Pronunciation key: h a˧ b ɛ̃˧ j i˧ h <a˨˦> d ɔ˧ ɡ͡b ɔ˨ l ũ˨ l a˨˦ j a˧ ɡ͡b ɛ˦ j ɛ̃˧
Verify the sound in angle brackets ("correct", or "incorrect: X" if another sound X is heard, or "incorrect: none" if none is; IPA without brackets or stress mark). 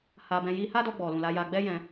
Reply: incorrect: a˦